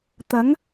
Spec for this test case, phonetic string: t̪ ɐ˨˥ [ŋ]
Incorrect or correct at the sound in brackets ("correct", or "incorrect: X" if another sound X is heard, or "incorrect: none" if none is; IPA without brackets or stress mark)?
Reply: correct